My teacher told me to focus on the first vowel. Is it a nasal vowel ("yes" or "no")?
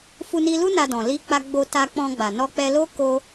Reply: no